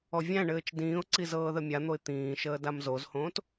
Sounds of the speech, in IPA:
ɔ vʲ æ̃ ɳ ɘː t͡ʃ d ĩː ʊ̯ ǀ i z ɤː ð ə mʲ a n̪ o ɪ̯ t̪ ĩː ʃ əː d a m z o z h õː t

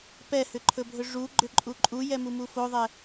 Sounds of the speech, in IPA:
p ɛ h ʏ ǃʰ ɵ bʱ ɵ ʐ u ɡ͡ǃ ʏ ǃʼ u ǃʼ u j ɛ m u m u f o ðˤ ɛ

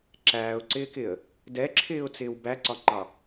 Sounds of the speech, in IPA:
ǁ æː ʊ̯ ǀ ɪː k ɪ ə̯ | d ɛ ǁʰ ɪː ʊ̯ t͡s ɪː w b æ ǀ ɒ ŋ͡ǃ ɑ

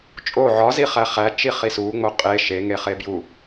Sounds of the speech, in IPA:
t͡ʃʼ o ʕ ɒ z i χ æ χ æ t͡ʃ i χ i s u ŋ͡m o qʼ e ʃ e ŋ e χ e b j u

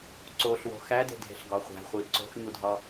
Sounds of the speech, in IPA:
ǀ o ɬ w o̤ x æ d e̤ dʱ e̤ ɬ ɡ ɒ χʷ æ̤ χʷ i ǀ o̤ x ɲ u dʱ ɒ

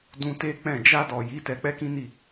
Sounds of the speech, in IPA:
d ũ˧ t e˦ k͡p ɛ̃˦˨ d͡ʒ a˧ d ɔ˨ j i˨˦ t ɛ˧ k͡p ɛ˦ k ĩ˦ n i˦˨

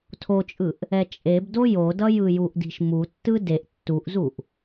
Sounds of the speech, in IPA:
tʰ o t͡ʃʼ ɯ ʔ | ɛ t͡ʃʼ e b d o j o d ʌ j ɯ j u ʔ d i̤ ʃ m u tː ɯ d e ʔ tː u ʔ z u ʔ

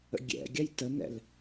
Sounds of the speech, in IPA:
ə̰ ɡʲ ɛ̰ ɡʲ a j t ə n ɛ̰ l

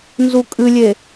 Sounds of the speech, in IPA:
n z u kʼ ɨ lʲ e

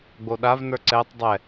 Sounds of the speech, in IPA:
ɡ͡b o ɗ a v n ə˞ ǀ ɛ tˤ dˤ ɛ

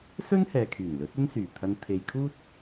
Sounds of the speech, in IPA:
s ɵ˥ n h ɛː˨ kʰ yː˨˩ n l ɵ˨˥ t̚ ɵ˥ n s yː˨˩ t̪ʰ ɐ˧ n t̪ʰ e˨ j kʰ uː˥ t̚

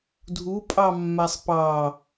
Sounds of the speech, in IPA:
dʱ u pʼ ɑ mː a sˤ p ɑ

